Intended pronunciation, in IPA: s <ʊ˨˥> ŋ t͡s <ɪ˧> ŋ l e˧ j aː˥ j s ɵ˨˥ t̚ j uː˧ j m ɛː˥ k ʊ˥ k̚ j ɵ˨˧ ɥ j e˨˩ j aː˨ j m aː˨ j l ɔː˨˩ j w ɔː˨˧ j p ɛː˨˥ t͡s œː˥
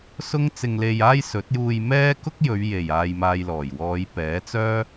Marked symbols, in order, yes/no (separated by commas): no, yes